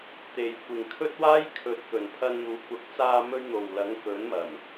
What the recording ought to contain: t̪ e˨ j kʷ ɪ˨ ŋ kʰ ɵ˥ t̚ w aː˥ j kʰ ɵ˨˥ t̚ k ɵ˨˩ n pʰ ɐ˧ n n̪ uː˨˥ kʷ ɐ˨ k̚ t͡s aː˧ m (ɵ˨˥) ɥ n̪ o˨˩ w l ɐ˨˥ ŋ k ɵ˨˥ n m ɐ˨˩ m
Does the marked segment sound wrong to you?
yes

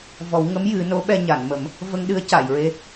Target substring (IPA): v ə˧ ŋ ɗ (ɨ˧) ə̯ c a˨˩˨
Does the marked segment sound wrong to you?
yes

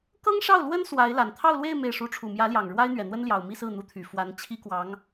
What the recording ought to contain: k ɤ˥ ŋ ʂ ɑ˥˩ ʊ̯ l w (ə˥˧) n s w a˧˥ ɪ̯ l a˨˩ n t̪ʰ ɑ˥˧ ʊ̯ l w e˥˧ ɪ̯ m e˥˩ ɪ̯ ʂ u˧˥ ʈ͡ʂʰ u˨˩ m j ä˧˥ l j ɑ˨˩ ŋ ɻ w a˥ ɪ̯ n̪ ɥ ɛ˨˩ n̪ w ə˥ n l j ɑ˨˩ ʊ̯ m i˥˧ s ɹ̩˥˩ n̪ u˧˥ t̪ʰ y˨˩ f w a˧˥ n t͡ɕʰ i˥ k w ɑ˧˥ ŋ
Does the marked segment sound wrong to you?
yes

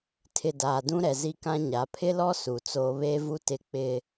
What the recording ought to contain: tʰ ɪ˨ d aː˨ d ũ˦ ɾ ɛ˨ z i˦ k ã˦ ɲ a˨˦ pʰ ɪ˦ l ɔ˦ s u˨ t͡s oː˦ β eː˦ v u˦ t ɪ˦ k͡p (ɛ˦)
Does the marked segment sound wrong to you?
yes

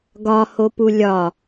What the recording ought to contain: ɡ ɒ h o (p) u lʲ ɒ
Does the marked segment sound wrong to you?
no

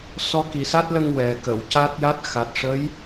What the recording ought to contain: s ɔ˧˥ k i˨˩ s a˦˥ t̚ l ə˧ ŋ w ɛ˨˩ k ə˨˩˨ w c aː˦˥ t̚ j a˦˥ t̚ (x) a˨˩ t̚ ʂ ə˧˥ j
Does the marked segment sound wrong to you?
no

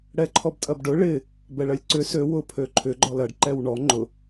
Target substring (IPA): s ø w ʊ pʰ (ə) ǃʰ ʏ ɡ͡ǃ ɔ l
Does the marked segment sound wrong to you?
yes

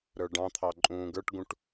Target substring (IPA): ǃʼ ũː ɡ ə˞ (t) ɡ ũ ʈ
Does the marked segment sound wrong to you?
yes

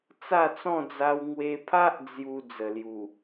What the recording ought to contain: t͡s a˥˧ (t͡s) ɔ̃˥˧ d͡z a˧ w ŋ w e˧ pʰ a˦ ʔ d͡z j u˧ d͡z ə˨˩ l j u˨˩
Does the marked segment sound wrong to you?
no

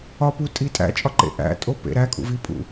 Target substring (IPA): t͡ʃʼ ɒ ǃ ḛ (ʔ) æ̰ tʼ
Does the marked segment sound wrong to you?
no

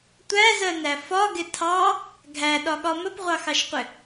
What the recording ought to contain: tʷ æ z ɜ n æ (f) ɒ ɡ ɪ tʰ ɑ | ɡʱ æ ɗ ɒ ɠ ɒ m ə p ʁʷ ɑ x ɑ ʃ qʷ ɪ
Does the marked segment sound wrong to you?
no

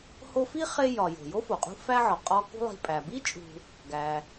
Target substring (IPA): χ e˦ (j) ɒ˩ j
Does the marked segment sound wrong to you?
no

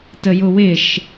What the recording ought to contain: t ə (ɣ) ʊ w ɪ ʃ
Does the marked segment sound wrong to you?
yes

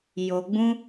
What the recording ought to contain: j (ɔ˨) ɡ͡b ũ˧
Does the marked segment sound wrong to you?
yes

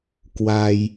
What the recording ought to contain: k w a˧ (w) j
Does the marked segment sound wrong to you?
yes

